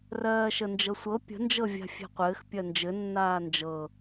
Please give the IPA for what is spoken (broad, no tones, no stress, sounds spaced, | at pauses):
r ɜː ʃ ə n d͡ʒ ɤ sʷ ɤ pʲ ə̤ n d͡ʒ ɤ vʲ a̤ fʲ e̤ qʷ ɘː x pʲ ɜ n d͡ʒ ɘ nː aː n d͡ʒ ɤ